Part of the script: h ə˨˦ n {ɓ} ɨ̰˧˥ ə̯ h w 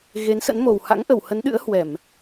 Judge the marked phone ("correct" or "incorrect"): incorrect